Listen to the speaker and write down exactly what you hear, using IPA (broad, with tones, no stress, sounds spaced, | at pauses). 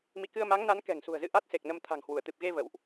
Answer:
m ḭ˧˨ k ɨ˧ ə̯ m a˨˦ ŋ n a˨˦ n k ɛ̤˨˩ ŋ s ṳ˨˩ ə̯ z ɨ̰˧˨ ʔ a˦˥ t̚ s e˨˩ k̚ n ə˧ m t̪ʰ a̤˨˩ ŋ h w u˧˩ ə̯ t̪ ɨ˨˩ p̚ ɣ e˧ v ə̰˧˨ w ʔ